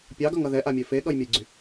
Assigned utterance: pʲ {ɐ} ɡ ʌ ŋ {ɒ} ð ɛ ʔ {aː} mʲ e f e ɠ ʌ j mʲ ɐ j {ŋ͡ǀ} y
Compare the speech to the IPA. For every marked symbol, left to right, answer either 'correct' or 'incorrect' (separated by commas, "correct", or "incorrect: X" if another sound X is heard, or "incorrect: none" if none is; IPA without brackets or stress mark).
incorrect: ɑ, incorrect: ʌ, incorrect: a, incorrect: ɡ͡ǀ